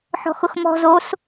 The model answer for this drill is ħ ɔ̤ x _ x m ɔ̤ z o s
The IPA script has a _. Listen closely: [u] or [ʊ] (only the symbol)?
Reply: ʊ